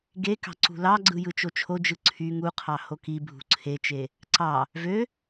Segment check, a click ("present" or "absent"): present